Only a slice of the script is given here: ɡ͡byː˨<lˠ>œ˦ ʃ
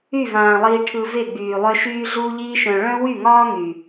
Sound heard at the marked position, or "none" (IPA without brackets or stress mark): lˠ